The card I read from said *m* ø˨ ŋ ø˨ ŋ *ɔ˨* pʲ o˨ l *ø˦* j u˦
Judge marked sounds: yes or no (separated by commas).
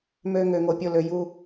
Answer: yes, no, no